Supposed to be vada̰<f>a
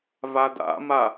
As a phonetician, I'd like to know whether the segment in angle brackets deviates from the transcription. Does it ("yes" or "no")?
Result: yes